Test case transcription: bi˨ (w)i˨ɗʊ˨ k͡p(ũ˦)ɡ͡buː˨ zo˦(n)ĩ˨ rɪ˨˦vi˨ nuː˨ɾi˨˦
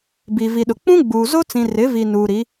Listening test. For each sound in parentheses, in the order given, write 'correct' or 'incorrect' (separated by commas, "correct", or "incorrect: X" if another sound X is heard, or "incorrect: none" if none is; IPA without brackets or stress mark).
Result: incorrect: v, correct, incorrect: t͡s